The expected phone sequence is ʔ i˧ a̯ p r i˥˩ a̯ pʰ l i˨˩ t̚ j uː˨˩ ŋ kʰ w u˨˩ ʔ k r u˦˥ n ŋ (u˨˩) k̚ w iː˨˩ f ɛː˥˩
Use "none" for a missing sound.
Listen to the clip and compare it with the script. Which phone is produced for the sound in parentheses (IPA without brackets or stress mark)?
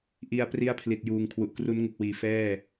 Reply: u˨˩